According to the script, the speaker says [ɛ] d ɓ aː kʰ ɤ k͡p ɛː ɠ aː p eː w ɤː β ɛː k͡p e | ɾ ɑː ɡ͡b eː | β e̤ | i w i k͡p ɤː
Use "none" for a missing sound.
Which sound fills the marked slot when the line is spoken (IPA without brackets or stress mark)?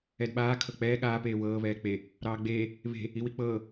ɛ